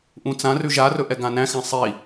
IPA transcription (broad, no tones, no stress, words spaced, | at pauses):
ʔũt͡sãrʉ ʒarɵ ʔɛɡãnæ̃xæ̃ sˤi